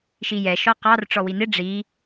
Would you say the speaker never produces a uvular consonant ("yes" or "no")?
no